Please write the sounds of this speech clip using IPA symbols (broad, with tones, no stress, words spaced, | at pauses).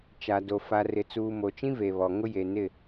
t͡ʃa˨do˨ fa˨rɪ˨t͡suː˨ mo˨t͡ʃĩ˦ ve˨βɔ˨ ŋʊ˦je˨nɪ˦˨